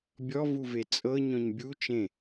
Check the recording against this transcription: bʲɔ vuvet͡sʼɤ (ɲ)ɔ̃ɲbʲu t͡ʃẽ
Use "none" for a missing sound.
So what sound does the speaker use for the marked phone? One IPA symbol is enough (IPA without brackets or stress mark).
ɲ